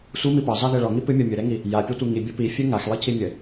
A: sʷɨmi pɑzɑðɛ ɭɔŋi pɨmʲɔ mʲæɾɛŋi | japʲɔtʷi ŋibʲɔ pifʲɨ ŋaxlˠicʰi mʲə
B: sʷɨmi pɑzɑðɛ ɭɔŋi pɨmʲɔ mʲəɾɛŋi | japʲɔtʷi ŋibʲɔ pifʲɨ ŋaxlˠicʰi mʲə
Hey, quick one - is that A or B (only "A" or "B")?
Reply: B